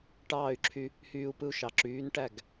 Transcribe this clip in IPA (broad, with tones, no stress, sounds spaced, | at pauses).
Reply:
ʈ ɑː˥˩ y̯ ǁʰ y˧ | h yː˧ u̯ p ɯ˧ u̯ ʃ ɑ˩ ǁ yː˩˥ n ʈ æ˥˩ ɡ